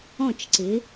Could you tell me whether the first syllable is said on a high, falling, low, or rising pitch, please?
falling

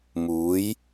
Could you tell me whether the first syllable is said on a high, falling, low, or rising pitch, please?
rising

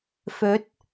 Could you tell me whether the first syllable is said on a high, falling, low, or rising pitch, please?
rising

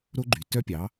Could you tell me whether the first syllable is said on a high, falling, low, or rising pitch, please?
high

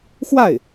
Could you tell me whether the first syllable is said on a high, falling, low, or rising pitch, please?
falling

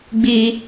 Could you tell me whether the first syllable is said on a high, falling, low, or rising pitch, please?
high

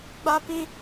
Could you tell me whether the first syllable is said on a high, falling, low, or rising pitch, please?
high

